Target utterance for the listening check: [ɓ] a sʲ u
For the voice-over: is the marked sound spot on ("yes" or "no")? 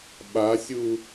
yes